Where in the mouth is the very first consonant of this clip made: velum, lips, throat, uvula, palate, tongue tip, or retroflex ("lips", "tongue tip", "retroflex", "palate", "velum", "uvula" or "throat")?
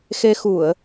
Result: velum